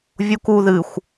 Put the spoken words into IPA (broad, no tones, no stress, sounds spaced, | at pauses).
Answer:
vʲ u k u ð ɨ xʷ